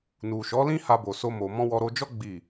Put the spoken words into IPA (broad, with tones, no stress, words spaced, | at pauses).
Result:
nu˨ʃɔ˨˦lĩ˦ ha˦bo˧ so˦mo˧ mɔ̃˦ wɔ˧ɾo˧d͡ʒɔ˦ ɡ͡bi˦˨